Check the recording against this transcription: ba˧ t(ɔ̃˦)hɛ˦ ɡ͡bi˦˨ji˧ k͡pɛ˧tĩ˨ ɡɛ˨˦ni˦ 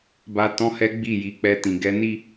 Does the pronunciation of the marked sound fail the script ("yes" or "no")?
no